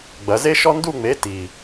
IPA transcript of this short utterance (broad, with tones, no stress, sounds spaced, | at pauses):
ɡ͡b ɐ˩˧ z e˥ ʃ ɔ˥ n d u˥˧ ŋ͡m e˨˥ t i˨˩